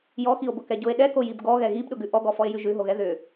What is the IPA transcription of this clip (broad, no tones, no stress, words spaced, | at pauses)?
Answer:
jɔxio̯bʊ kɛɟʊe̯ ɗɛko jibɡɔɣɛ ɣibɗʊɡʉ ʔɔɡɔfɔe̯jʉ ʒʉɦoɣɛ ðʏ